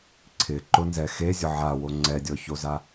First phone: ǀʰ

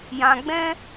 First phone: j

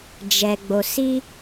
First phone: d͡ʒ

